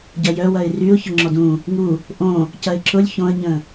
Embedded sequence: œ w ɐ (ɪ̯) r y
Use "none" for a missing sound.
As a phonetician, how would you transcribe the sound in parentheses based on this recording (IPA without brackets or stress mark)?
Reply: ɪ̯